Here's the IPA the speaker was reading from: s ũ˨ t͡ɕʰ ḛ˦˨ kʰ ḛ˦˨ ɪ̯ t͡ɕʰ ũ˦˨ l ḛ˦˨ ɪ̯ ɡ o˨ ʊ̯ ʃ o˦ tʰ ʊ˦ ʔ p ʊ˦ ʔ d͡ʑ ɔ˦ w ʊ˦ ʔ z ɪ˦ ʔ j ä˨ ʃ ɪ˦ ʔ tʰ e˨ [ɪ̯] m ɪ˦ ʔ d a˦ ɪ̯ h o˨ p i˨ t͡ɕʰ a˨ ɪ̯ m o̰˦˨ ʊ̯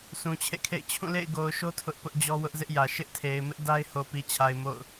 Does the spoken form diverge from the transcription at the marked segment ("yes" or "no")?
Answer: no